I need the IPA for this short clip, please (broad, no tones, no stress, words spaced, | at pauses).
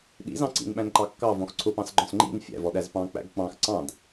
ɗḭzɑ̃ ǀḭnɓæ̃nǃɑ kːɑvɔ̃x ǀʰʊpɑ̃sɡ͡ǃɔ̃s ŋ͡ǃḭn fʲæ̰vɔɗæz pɑ̃k͡pæ̰ɡ k͡pɑ̃x ǀɑ̃d